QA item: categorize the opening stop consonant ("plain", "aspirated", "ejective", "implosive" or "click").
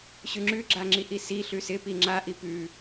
click